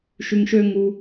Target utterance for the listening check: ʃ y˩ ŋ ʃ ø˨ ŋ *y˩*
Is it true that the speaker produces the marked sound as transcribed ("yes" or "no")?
no